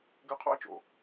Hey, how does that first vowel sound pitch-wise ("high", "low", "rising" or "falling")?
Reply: high